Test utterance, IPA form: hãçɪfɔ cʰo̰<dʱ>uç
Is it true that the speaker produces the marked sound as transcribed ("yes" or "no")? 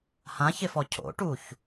no